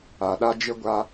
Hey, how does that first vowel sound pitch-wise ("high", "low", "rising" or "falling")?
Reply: low